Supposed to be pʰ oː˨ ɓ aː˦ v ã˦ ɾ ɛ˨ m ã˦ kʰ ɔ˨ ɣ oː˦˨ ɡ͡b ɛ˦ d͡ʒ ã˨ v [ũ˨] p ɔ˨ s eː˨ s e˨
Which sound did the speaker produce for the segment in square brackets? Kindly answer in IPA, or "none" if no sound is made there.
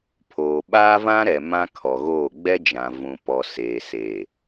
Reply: ũ˨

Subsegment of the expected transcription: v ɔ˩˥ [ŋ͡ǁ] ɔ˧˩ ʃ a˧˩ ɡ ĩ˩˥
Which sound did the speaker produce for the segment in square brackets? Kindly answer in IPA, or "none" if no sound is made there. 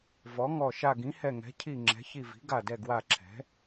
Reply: ŋ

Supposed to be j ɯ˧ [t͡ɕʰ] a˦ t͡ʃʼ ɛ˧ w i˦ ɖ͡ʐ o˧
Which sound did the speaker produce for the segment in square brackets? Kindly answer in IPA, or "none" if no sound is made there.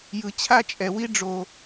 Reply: t͡ɕʰ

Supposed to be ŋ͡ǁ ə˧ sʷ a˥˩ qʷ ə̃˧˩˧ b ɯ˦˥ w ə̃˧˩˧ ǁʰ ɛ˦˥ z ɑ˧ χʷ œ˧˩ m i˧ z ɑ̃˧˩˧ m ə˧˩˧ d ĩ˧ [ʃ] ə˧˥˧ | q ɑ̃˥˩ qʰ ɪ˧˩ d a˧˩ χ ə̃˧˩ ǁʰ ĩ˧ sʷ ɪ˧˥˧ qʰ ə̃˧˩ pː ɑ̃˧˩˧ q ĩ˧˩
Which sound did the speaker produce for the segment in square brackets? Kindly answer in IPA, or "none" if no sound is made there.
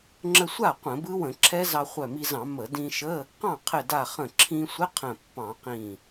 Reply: ʃ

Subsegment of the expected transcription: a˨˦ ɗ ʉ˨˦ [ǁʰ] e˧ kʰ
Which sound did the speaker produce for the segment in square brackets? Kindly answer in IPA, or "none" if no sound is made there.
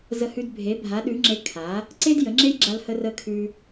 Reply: ŋ͡ǁ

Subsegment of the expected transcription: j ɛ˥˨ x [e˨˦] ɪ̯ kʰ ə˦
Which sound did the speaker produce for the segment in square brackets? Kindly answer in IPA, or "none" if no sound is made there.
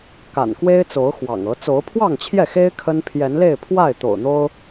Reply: e˦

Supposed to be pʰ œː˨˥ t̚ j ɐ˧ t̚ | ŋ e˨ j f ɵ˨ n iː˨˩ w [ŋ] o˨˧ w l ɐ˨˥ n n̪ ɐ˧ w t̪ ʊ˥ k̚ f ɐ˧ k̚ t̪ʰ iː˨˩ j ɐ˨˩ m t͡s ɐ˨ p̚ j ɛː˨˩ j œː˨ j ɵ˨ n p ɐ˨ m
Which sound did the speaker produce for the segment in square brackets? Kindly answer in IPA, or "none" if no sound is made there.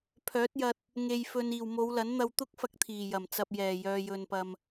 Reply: m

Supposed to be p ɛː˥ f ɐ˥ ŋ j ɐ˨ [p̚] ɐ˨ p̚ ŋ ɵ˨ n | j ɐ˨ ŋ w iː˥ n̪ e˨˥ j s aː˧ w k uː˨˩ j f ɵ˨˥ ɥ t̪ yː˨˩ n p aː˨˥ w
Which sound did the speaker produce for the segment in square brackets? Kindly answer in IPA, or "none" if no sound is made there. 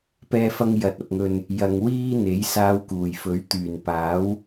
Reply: t̚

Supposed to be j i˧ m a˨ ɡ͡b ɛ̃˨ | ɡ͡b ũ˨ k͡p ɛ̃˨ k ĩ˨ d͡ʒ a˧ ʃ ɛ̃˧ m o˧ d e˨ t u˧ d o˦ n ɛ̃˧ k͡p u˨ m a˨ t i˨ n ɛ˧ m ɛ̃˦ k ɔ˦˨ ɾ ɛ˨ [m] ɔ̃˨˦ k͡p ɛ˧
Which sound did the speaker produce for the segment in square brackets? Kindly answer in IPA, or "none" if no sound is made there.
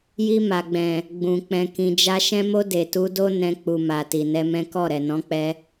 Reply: n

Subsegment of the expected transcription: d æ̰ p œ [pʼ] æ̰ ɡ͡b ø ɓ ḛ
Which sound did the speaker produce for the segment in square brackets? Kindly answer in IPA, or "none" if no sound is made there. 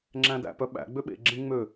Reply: ɓ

